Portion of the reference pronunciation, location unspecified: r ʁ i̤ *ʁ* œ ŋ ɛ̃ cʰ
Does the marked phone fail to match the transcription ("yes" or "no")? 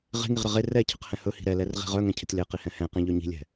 no